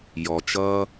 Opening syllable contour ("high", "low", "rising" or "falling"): low